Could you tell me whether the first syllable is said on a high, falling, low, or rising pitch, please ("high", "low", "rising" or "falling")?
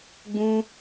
high